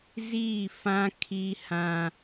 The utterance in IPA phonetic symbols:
ziː˦˨fã˦ kʰi˦hã˦

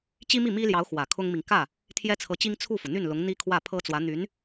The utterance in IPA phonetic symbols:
t͡ɕi˥mi˥˩mi˥ljɑ˧˥ʊ̯ xwä˨˩kʰʊ˥ŋmi˨ŋ kä˥˩ | t̪ʰjɛ˥t͡sʰɤ˧˥t͡ɕi˥ŋ t͡sʰu˥˩fu˩ n̪y˥˩n lʊ˧˥ŋ n̪i˥ kʰwä˥˩pʰɤ˥t͡swä˧˥ n̪y˧˥n

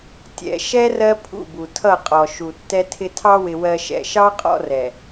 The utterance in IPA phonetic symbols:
tʲɛ̰˨ʃɛ˦ rɜ˦pʰṵ˦˨bu˨ tʰʌ˦˨qʼɔ˨ ʃu˨tːɛ˦tʰɪ˦ tʰɑ˦wɪ˨ wɜ˨ʃɛ̰˨ʃɑ˦ qʼɔ̰˦rɛ˨

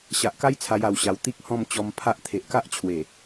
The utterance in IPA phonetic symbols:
ɕa˨ʔka˦j t͡sʰa˧ja˨˩wɕa˨˩w t̪i˦k̚hɔ̃˥˧m t͡ɕɔ˧mpʰa˦ʔ t̪ʰe˨ʔka˦ʔt͡ɕʰwe˨˩

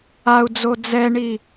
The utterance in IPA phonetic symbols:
au̯d͡zo d͡zɛɳi

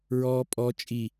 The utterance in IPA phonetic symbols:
ɹɔː pʼɔ t͡ʃʼi

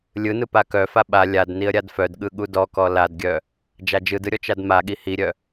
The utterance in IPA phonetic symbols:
lʲɯnɯ pakœfa ɓa lʲad niə̯ɾʲadfœdɠɯ ɠudɔkɔ ladɡʲœ | d͡ʒad͡ʒɯdɯ ɾʲɔt͡ʃadmaɠi hiɾʲœ

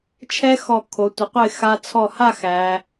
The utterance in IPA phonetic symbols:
t͡ʃʰɛ˥xɔ˧˩ kʰo˩˧tʷə˩˧qʷə˥˧ɪ̯ xa˧t͡sʰɔ˧˩ha˥˧ xæ˩˧

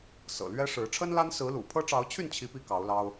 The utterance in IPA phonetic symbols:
sɤ̰˨˩lɥɛ˦ʂɻ̩˨˦ ʈ͡ʂʰə˦nla˦n sɹ̩˨˦lṵ˨˩ pʰɤ˦ʈ͡ʂɑ˨˦ʊ̯t͡ɕʰy˥˨n t͡ɕʰi˦pi˥˨kɑ˨˦ʊ̯lɑ˦ʊ̯

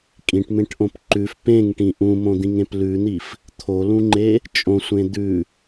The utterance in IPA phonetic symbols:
kʼĩʈmẽʈʔõp ǃʉf pẽŋʈĩ ʔũmõd̪ĩŋẽp lʉn̪if | t̪ʰolũŋ͡ǃe | t͡ʃʼõsʷẽ d̪ʉ

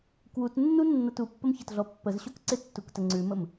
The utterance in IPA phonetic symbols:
kwutnːunːɐt upːəmçɐtɮɔ pːəzɕok ǀɪtːuktə ŋ͡ǀʉməm

